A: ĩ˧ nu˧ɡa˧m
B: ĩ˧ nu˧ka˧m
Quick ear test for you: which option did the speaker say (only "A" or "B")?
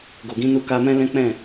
B